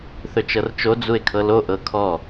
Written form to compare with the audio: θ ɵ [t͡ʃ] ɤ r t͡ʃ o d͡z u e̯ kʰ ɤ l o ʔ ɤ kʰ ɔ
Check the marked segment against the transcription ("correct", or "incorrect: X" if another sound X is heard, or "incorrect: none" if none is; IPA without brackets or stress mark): correct